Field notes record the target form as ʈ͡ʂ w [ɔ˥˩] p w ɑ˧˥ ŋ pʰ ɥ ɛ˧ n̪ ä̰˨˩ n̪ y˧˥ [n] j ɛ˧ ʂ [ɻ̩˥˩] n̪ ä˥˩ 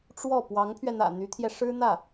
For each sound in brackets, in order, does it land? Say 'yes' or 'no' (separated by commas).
yes, no, no